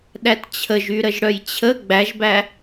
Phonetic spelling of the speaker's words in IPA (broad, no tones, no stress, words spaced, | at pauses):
ɗætt͡ɕʰəʒy ɾəʒɽœjt͡ɕʰə ɡ͡bæʒbæ